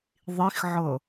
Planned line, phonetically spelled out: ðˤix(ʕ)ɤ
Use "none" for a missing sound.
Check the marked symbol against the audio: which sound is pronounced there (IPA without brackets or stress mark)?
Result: ʕ